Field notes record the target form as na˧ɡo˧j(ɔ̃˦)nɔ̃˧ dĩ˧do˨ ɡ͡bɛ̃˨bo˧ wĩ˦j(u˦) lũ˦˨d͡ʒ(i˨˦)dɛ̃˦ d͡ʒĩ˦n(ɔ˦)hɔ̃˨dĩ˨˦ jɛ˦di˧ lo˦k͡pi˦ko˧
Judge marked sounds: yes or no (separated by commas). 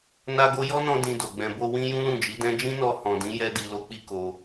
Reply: no, no, yes, no